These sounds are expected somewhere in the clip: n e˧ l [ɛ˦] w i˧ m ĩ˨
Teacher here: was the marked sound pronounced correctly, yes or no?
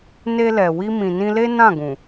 no